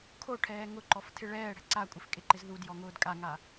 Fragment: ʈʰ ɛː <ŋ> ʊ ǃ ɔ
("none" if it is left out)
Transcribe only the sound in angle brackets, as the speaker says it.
ŋ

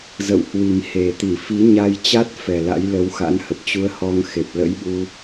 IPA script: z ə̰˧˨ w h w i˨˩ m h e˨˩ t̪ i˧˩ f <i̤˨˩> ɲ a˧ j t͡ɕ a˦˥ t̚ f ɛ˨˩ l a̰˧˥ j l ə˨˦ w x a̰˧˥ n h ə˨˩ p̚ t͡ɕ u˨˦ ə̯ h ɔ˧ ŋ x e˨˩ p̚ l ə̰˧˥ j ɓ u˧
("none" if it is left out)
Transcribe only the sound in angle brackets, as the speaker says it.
i˨˦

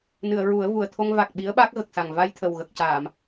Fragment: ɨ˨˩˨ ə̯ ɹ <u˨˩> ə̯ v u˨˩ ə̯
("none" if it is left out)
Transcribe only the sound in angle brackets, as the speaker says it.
u˨˩˦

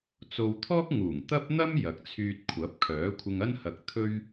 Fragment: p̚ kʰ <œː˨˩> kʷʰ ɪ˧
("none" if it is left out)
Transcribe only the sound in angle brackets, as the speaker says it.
œː˨˥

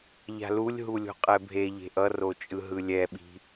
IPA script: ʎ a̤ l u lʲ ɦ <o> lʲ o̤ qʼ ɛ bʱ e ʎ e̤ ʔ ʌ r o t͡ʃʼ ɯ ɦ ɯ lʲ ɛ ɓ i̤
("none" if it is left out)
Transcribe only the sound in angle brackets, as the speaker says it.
u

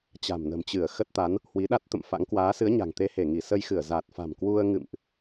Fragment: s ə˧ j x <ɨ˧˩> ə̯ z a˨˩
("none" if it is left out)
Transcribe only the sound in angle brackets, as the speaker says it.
ɨ˧˩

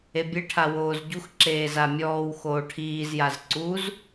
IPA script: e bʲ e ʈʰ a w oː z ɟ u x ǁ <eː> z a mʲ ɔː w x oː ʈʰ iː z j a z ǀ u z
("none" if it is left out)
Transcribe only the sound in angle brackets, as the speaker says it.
eː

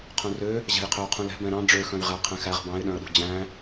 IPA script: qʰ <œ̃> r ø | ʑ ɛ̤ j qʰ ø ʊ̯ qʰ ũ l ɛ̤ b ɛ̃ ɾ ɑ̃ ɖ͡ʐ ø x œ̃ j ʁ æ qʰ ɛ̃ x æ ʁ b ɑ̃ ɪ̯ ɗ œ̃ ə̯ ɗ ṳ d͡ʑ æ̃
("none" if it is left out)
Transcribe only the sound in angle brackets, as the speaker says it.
œ̃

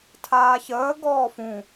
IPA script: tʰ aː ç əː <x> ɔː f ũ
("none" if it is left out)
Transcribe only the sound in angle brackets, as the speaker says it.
ɡ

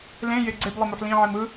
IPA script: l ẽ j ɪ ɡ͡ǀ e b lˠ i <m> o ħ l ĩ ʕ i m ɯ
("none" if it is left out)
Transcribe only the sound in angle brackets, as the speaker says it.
m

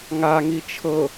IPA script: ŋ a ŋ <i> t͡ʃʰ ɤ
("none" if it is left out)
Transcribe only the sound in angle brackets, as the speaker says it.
i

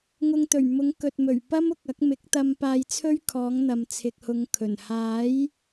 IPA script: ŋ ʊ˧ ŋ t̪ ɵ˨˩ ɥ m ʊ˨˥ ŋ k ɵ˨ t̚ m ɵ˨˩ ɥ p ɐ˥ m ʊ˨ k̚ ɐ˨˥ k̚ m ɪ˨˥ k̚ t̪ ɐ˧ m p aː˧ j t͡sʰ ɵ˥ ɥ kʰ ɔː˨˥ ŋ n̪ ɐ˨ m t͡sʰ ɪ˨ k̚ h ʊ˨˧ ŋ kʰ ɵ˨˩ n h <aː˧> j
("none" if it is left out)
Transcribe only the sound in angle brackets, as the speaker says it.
aː˨˥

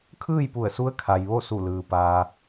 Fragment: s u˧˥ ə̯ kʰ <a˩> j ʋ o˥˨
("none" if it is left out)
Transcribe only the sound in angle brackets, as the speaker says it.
a˩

